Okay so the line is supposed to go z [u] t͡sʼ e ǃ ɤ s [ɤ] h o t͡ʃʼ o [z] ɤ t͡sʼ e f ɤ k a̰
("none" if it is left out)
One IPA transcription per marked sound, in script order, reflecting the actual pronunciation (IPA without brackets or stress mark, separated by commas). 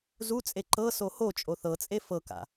u, o, θ